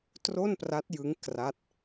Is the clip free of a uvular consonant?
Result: yes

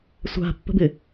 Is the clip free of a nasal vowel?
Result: yes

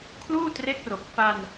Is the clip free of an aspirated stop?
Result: no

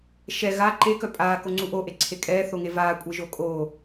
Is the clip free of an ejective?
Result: no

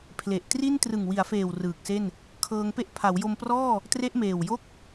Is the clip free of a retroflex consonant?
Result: yes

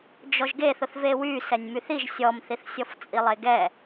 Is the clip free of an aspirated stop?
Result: yes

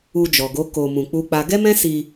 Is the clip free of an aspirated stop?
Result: yes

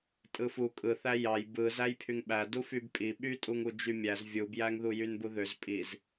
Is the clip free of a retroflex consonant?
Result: yes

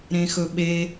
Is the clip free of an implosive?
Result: no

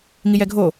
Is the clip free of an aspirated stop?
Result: yes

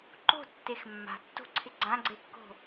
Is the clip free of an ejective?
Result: yes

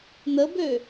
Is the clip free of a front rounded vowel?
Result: no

